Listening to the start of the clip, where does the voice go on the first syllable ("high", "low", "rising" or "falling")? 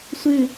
falling